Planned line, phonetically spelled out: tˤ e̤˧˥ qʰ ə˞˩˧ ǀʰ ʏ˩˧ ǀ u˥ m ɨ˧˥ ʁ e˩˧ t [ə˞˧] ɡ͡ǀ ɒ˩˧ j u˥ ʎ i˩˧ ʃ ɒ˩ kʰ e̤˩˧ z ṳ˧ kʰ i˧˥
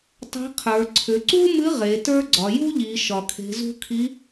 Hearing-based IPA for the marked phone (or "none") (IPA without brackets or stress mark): ə˞˥